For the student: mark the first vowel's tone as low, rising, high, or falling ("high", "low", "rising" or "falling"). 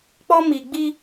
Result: high